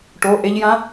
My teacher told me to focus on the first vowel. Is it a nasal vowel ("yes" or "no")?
no